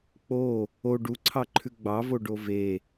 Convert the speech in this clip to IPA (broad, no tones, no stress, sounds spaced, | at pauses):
k͡p o | o ɖ u ǀʰ ɑ ǃʰ ʉ ɡ͡b ɑ v o ɖ o v e